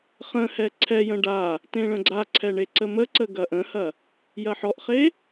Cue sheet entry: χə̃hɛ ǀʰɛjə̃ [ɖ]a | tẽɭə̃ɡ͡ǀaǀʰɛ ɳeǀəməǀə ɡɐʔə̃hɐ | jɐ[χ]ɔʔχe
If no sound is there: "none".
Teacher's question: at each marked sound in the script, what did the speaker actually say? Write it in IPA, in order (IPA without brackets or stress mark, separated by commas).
ɖ, ħ